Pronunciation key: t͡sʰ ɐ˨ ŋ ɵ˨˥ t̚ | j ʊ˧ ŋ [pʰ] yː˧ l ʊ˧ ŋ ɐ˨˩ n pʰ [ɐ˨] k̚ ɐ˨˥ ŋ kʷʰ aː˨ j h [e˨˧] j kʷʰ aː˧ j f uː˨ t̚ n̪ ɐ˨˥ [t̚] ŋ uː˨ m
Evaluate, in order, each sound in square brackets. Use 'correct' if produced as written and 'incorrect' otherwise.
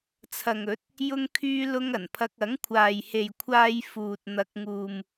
incorrect: kʰ, incorrect: ɐ˧, incorrect: e˨, incorrect: k̚

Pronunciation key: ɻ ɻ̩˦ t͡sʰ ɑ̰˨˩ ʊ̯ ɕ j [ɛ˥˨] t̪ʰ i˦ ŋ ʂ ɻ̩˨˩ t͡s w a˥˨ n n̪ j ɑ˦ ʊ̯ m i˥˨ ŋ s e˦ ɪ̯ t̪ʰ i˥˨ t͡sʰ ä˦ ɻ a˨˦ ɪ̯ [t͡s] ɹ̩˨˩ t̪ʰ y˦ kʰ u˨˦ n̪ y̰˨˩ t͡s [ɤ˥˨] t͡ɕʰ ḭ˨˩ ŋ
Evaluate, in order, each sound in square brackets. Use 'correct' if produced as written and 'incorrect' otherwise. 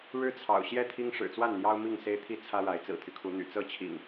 correct, correct, correct

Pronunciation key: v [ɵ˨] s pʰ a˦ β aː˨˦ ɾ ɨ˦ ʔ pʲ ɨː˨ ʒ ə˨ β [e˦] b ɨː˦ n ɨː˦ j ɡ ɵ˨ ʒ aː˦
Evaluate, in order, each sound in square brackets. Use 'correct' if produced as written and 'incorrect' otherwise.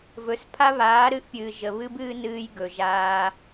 correct, incorrect: ɨ˦

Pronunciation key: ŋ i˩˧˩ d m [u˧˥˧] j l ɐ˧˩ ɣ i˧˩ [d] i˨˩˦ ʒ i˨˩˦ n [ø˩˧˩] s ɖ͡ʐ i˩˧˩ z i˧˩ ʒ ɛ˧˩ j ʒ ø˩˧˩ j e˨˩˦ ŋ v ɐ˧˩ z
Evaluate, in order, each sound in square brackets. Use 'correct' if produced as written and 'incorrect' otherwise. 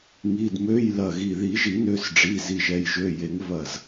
incorrect: ø˧˥˧, incorrect: ð, correct

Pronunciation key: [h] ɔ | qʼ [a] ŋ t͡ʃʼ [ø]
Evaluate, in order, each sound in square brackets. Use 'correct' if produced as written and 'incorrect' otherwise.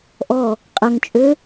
incorrect: ʔ, incorrect: ɐ, correct

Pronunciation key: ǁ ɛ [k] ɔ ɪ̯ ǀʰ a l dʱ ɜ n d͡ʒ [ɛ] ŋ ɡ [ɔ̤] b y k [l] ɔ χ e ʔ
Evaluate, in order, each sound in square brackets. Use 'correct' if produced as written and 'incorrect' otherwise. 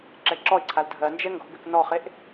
incorrect: ǁ, correct, correct, incorrect: n

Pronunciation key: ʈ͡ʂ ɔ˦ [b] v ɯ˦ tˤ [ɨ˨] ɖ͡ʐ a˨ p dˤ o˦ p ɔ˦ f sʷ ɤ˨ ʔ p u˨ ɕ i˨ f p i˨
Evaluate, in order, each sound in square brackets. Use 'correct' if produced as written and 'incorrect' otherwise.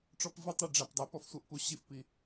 incorrect: p, incorrect: i˨

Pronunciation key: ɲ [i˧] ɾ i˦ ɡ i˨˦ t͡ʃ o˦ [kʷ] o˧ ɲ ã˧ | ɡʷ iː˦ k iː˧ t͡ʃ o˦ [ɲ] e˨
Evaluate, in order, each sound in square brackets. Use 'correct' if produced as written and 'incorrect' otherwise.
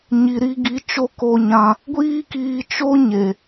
correct, incorrect: k, correct

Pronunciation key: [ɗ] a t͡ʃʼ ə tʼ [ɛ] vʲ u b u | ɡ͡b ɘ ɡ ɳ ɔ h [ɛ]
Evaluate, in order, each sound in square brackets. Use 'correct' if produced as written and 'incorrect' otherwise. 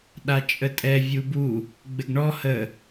correct, correct, incorrect: ə

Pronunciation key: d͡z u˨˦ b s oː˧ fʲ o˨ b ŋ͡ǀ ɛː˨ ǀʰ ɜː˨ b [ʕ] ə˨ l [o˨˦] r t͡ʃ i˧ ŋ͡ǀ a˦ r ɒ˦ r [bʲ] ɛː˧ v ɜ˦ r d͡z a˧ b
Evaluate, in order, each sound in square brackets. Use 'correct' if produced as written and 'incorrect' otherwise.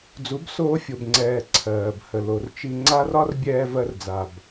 incorrect: h, incorrect: o˨, correct

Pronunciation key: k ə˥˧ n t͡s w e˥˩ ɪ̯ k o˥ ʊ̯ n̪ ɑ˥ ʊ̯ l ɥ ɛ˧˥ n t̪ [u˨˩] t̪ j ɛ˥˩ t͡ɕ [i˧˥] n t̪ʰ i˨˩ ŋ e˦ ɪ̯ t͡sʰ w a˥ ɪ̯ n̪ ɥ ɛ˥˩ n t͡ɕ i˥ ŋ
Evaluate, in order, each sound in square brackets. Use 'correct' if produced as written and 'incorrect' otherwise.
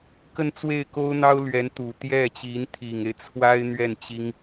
correct, correct

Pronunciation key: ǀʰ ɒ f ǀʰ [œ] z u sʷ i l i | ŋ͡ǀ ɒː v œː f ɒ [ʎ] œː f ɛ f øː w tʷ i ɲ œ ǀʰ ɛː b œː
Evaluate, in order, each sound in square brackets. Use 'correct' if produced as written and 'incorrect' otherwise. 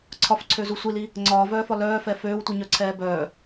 incorrect: ø, incorrect: l

